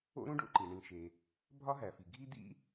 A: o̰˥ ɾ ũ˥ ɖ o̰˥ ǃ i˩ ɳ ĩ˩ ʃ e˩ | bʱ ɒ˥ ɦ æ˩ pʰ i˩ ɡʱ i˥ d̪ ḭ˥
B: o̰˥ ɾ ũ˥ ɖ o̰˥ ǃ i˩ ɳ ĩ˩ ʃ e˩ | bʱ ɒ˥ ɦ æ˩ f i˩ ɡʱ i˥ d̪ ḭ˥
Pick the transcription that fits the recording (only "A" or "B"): B